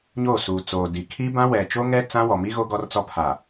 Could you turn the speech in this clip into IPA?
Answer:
ɲ oː˦˨ s uː˨ t͡s oː˨ d i˨ kʰ i˦ b ã˦ w ɛ˨ t͡ʃ o˦ ŋ ɛ˦ t͡s ã˦ w ɔ˨ m i˦ ɣ o˦ ɡ ɔ˦ r t͡s ɔ˦ pʰ a˨

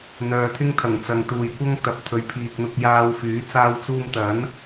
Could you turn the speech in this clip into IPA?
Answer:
n̪ œː˨ t̪ʰ ɪ˥ ŋ t̪ʰ ɐ˨˩ ŋ t͡s ɐ˨ ŋ t̪ uː˨ j kʷ ɐ˥ ŋ t̪ ɐ˨˥ p̚ t̪ʰ ɵ˨˧ ɥ pʰ iː˨ k̚ n̪ ʊ˧ k̚ j aː˧ w f yː˨˥ t͡s aː˧ w t͡s uː˧ m t̪ ɐ˨˥ n

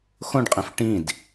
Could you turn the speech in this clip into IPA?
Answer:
x õ ɖ qʼ ẽ f ʈ ĩ d

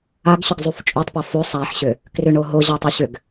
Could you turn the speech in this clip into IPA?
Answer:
a ɡ ɕ ʏ ɡ zˤ u f t͡ʃʼ o tˤ p a f o sˤ a ħ ɕ ʏ | k r ʏ ɳ o ɦ o ʑ a tˤ u ɕ ʏ ɡ

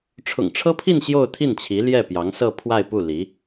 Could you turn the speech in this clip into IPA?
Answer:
ʈ͡ʂʰ ʊ̰˨˩ ŋ ʈ͡ʂʰ ɤ˥ pʰ i˥˧ n ɕ j o˥˧ ʊ̯ t̪ʰ i˥˩ n t͡ɕʰ i˧˥ l j ɛ˥˩ p j ɑ˧˥ ŋ s ɤ˥˧ pʰ w a˥˧ ɪ̯ p u˥˩ l i˧˥

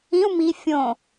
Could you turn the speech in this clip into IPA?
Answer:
ĩ u̯ m i fʲ õ

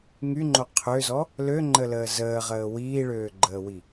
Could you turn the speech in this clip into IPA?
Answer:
ŋ y ŋ͡ǃ o qʰ ø z ɔ | l ø ŋ͡ǃ ə l əː z əː ʁ əː w iː ɭ øː ɡ͡ǃ əː w i

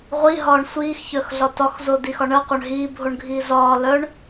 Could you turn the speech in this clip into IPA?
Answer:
ʁʷ i ɦ ɒː ɳ sʷ iː x ç œ x ɮ ɒ t ɒ x z o d i x ɒ ɳ ɜ qʷ œ ɳ ɦ iː bʱ o ɳ ɡʱ iː z ɒː l œ ɳ

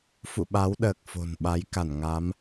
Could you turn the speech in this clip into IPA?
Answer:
f ṵ˧˨ ɓ a˨˦ w ɗ əː˨˩ k̚ f o̤˨˩ n ɓ a˨˦ j k a˧˩ n ŋ a˨˦ m

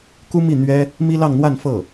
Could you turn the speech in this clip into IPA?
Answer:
k u˥ m i˥˩ n̪ ɥ ɛ˥ | m i˥ l ɑ˥˧ ŋ n̪ w a˥˧ n f ɤ˥˩

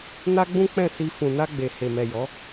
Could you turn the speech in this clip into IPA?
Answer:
n a˦ ɡ͡b ũ˦ k͡p ɛ̃˦˨ s i˧ f ũ˨ n a˧ ɡ͡b e˨ h e˨ m ɛ˨ j ɔ˨˦

